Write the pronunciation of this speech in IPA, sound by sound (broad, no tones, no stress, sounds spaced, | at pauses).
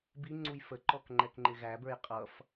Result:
b i ŋ͡ǀ u j f ə ǃ ɔ k ŋ͡ǃ ɛ k ŋ͡ǃ ɪ ɣ æ b ə˞ j qʼ ʌ f